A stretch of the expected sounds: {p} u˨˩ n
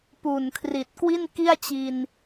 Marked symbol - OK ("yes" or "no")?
yes